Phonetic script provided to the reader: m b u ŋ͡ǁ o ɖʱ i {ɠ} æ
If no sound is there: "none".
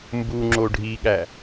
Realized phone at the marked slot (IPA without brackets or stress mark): ɠ